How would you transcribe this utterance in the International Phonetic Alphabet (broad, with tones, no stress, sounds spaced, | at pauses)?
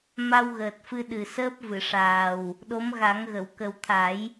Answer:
m a˧ w ɣ əː˨˩ t̚ f ɨ˧ ɗ ɨ˨˩ s əː˦˥ p̚ v ɨ˨˩˨ ʂ aː˨˩ w | ɗ o˧˥ m ɣ a˨˩˦ ŋ ɣ ə˨˩˨ w k ə˨˩ w t̪ʰ a˨˩˦ j